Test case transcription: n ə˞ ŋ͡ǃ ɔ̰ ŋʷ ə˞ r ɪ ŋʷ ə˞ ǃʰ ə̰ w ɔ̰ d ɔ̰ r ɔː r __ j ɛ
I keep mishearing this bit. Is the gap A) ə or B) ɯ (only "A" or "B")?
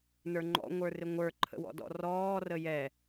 A